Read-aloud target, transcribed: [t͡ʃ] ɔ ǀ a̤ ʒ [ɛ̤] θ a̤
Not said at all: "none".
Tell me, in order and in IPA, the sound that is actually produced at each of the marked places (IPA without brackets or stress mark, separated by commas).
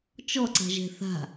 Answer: t͡ʃ, ɛ̤